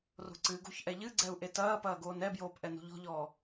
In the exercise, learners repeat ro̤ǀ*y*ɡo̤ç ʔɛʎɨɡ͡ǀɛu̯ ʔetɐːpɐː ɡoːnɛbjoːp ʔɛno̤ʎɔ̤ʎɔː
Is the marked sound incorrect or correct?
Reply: incorrect